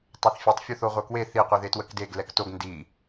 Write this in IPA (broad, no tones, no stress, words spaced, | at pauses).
tˤøθfʲetˤ fʲuθoʁʷœkwe θi qʷiðetwəkdeɡ lɛktoɡ ndi